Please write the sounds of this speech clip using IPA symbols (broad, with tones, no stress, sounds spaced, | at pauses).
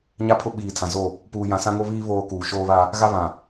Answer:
ɲ a˦ pʰ ʊ˦ ɓ iː˨ tʰ ã˨ z o˦˨ | p uː˨ j ã˨ s ã˦ ŋ o˦ β iː˦ β oː˦ k uː˨ ʃ oː˦ β a˦ | ɣ a˦ β ã˨